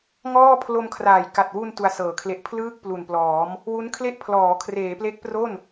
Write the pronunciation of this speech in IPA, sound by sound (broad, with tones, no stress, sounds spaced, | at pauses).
ŋ ɔː˥˩ pʰ l o˧ m kʰ r aː˨˩ j k a˨˩ t̚ w u˧ n t u˧ a̯ s ɤː˨˩ kʰ l e˦˥ ʔ pʰ l ɯː˥˩ k̚ p l u˨˩ n p l ɔː˩˦ m | w u˦˥ n kʰ l e˥˩ ʔ pʰ l ɔː˩˦ kʰ r eː˩˦ p l e˦˥ k̚ p r o˥˩ n